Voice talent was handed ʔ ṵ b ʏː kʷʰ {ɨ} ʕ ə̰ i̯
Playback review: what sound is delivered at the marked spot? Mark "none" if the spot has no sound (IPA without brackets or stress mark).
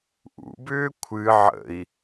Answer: ɨ